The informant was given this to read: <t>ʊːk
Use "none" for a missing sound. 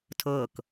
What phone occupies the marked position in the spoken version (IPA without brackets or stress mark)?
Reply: tʰ